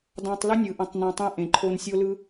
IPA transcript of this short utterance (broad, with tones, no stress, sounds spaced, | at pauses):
d ɑ̃˧ tˤ l ɯ˦ nʲ ɯ˨ ʔ ə̃˨ tˤ n õ˨ tˤ ẽ˧ ʔ ẽ˨ ǃʰ o˧ n sʲ o˦ l ɯ˦